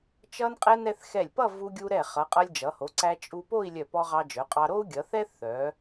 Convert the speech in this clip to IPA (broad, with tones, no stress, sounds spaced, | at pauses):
t͡ʃ ʌ˧ n qʼ ɛ˧ n ɛ˧ θ x ɛ˧˩ lʲ p ʌ˥˧ v u˧ ɡʲ u˧ ɾ ɛ˧˩ χ ʌ˩˧ qʼ ʌ˧ lʲ d͡ʒ ʌ˩˧ h o˩˧ ǀ æ˧ t͡ʃʼ u˧ p o˥˧ i̯ lʲ œ˧˩ p ɔ˧ ʁ ɑ˧ d͡ʒ œ˩˧ qʼ ɑ˧ ɾ o˥ u̯ ɡʲ ʌ˩˧ θ ɛ˥ θ œ˩˧